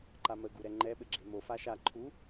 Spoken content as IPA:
ǃ a m ə ɡ u ɾ ɛ ŋ͡ǃ ɛ ɓ ɘ ɡ͡ǁ e m o f a ʃ a ǃʰ u

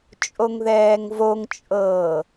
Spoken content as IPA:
t͡ʃʼ o ŋ ð ɛː ŋ v o ŋ t͡ʃʼ ɤː

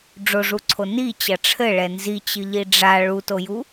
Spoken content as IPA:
ɖ͡ʐ o ʐ u ǀʰ o n i t͡ɕ ɐ ʈ͡ʂʰ ɘ ɭ ɛ n z i t͡ɕ ɨ ʎ i ɖ͡ʐ a ɭ u t o j u

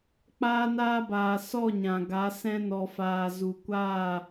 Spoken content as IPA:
k͡p aː˧ n aː˧ b aː˨ s ɔ˦˨ ɲ ã˨ ɡ a˨˦ s ɛ̃˧ n ɔ˨ f aː˨ z u˨ kʷ aː˦˨

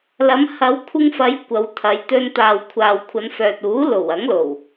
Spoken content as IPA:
l ɐ˨˧ m h ɐ˨˧ w kʷʰ ɪ˧ ŋ f ɐ˨˧ j kʷ ɐ˨˧ w t̪ʰ ɐ˨˧ j t̪ ɵ˧ n t̪ aː˨ w kʷʰ aː˨ w kʷʰ ɐ˨˧ n f œː˨ t̚ uː˨˥ l o˨˩ w ɐ˨˥ ŋ l o˨˩ w

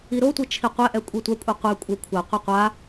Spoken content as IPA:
i ɾ o tʷ i t͡ʃʰ i qʷ ɛ ʔ ɛ kʷʼ i tʷ a kʷʼ i qʷ ɛ kʷʼ ʌ kʷʰ a qʷ ʌ qʷ a

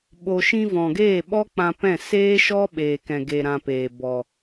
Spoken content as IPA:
ɓ o˨ ʃ ĩ˧ v ɔ̃˨ ɡ eː˦˨ ɓ ɔ˦ k͡p ã˧ p ɛ̃˦˨ s eː˦ ʃ ɔ˦ ɓ eː˨ k ɛ̃˨ ɡ e˨ ɾ ã˧ p eː˨ b ɔ˨

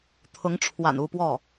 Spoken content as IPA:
t̪ʰ ʊ˧˥ ŋ ʈ͡ʂʰ w a̰˨˩ n u˥˧ p w ɔ˥˩

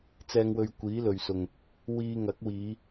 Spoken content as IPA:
t͡s ɛː˨ ŋ w ɵ˨ ɥ kʷ iː˨˥ l ɵ˨ ɥ s ʊ˨ ŋ | w iː˧ ŋ ɐ˨˥ k̚ w iː˨˧

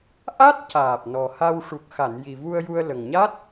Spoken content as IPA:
ʔ a˦˥ t̚ c aː˨˩ p̚ n ɔ˨˩ h a˧ w ʂ u˨˩ k̚ x a˨˩˨ n j i˨˩ v u˧ ə̯ j u˧ ə̯ l ə˨˩ ŋ ɲ a˦˥ t̚

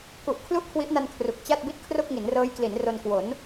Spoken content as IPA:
k u˨˩ ʔ kʰ l u˥˩ ʔ kʰ w i˦˥ ʔ n a˧ n kʰ r u˨˩ k̚ t͡ɕ a˥˩ t̚ b i˥˩ t̚ kʰ r o˥˩ k̚ ŋ i˩˦ n r ɤː˦˥ j k l i˩˦ n r o˧ n k w o˩˦ n

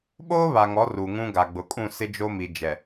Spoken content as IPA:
ɓ oː˦ β a˨ ŋ ɔ˨˦ r u˨ ŋ ũ˦ ɡ a˨ ɡ͡b ʊ˨ kʼ ũ˦˨ s ɪ˦ d͡ʒ o˦ m i˨ d͡ʒ ɛ˨

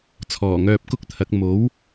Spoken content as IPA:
t͡sʰ ɔː˨˩ ŋ œː˧ p̚ k ʊ˥ k̚ t̪ʰ ɐ˨˥ k̚ m o˨˥ w

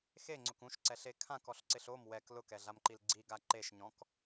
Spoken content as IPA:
x e ŋ͡ǀ ʊ k ũ ʃ ǀ ɛ ɬ e kʰ ã k ɔ ɬ ǀ ɪ ɬ o m w ɛ k l ʊ k ɛ ɮ a m ǃ i l ɡ͡ǀ i ɡ a ǃ e ʃ ɲ ɔ̃ k

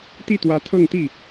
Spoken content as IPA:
t̪ i˥˩ t̪ w ä˧˥ t̪ʰ ɤ˥˧ ŋ t̪ i˥˩

